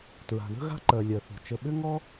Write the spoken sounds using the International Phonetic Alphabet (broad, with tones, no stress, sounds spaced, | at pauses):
t ɹ a̤˩ ð ə̤˥ ɣ a̤˥ ǃ ɜ˩ lʲ ɜ˩ θ o̤˩ t͡ʃ ə˩ ɓ ʏ˥ ŋ ɔ˥